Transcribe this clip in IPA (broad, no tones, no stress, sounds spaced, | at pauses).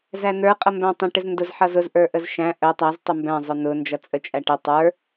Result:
z æ n ə˞ qʼ ʌ m b æ̃ tˤ ə̃ ʈ ɪ z n d ʊ z ħ ʌ z ʊ z ʔ ə˞ ʔ ə z ʃ æ̃ ʔ ə tˤ æ z tˤ ʊ m b æ̃ zˤ ʊ n ʊ n d͡ʒ ʌ t͡sʼ ə t͡ʃʼ æ ʈ ɪ tˤ ə˞